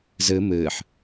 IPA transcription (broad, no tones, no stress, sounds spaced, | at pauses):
z ɨ m ɨː ħ